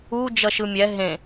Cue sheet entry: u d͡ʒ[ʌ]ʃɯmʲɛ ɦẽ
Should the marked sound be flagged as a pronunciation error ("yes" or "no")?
no